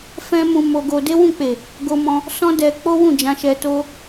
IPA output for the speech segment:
fɛ̃˦mũ˧mo˧ɡo˧ de˦wũ˦˨k͡pe˨ | ɡo˧mɔ̃˧ | sɔ̃˦dɛ˧k͡po˦ wũ˦˨d͡ʒã˧ ʃɛ˧to˦

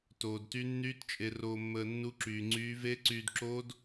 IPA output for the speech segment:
toː˧dty˦˥ nːyː˦˥tt͡ʃʼe˧roː˧mːəː˧ nːu˦˥ǁyː˧ ŋ͡ǀyː˦˥ ve˦˥ǀyː˧dǁoː˦˥d

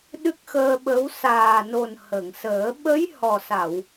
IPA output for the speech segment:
ɗɨ˦˥k̚xəː˧ɓə˧˥w saː˨˩no˨˩n hə˨˩˨ŋsəː˨˩˦ ɓə˧˥j hɔ˨˩sa˨˩˨w

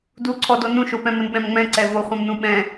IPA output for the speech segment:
duǀʰɔdo nũʃopɛ̃ mənɓɛ̃mŋ͡mɛ̃ ǀɛvo χʷɛ̃mnũɓɛ̃

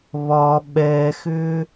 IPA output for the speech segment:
βɒ ɓɛxʏ

